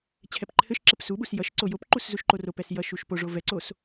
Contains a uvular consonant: no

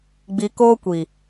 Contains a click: no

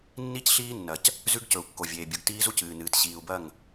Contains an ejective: no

